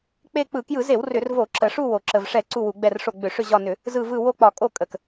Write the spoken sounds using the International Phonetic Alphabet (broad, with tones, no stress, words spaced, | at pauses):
k͡pe˦˨ k͡pɯ˧˩˧kjɯ˧˩˧ze˧˩˧w rʏ˧˩˧r vo˧˩˧ǁə˨˩ʂu˦˨ wo˨˩ǁə˨˩vʂɛ˧˩˧ ǀu˦˨wu˧˩˧ɡ͡bɛ˦˨rʂo˦˨ ɡ͡bʏ˧˩˧ʂʏ˦˨ʑɒ˦˨nʏ˧˩˧ | zɯ˦˨vɯ˦˨ wo˦˨k͡pɒ˧˩˧ kʼo˦˨kʼə˨˩k